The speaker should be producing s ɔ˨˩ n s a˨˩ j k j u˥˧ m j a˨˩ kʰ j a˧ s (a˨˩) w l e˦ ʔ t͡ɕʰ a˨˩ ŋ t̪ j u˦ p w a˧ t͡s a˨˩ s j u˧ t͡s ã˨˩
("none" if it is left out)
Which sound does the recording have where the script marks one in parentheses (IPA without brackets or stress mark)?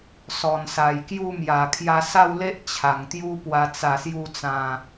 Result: a˥˧